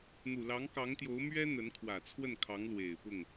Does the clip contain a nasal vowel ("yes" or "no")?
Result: no